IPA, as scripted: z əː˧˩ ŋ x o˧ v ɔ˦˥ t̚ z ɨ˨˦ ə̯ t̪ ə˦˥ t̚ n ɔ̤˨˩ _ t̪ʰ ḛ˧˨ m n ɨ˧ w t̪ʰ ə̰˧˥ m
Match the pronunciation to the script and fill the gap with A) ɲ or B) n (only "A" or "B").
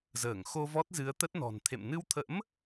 B